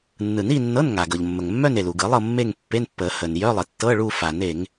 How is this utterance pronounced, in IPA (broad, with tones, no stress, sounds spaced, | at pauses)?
nː ɯ˨˩˦ n i˥˧ nː ɤ˧˥˧ n ŋ a˩ ɡ ɤ˩ ʎ mː ə˩ ŋ mː œ˥˧ n e˩ l u˩ ɡ ɯ˨˩˦ lˠ ɤ˥˧ mː e˥˧ ŋ pː e˧˥˧ n pː ə˨˩˦ h ə˩ n j œ˧˥˧ lˠ ə˩ tː ɤ˧˥˧ ɭ u˥˧ f a˨˩˦ n e˨˩˦ ŋ